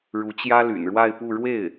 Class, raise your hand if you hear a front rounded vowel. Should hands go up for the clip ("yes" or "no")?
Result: yes